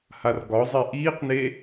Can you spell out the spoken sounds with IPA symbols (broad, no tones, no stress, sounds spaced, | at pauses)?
h a r ɡ ɒ zˤ e ʔ iː q n e